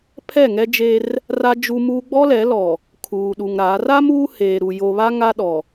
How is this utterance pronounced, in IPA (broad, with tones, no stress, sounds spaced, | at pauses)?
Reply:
pʰ ɛ˦˨ ŋ ɛ˦ d͡ʒ e˦ r | r a˦ d͡ʒ u˦ m uː˦ ɡ͡b ɔ˦ l ɛ˨˦ l ɔ˨ | kʰ uː˨ ɗ u˨ ŋ ɾ a˨˦ r a˦ m uː˦ h eː˨ ɾ u˨ j o˨ β a˦ ŋ a˦ ɗ ɔ˨